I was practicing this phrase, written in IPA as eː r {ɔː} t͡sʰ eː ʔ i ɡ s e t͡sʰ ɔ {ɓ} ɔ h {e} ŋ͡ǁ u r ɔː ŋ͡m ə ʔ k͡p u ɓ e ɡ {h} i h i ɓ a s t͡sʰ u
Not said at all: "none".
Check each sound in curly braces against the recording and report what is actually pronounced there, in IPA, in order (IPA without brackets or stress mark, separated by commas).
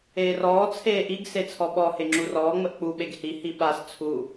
ɔː, ɓ, e, h